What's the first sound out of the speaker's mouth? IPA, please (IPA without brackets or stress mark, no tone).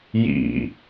j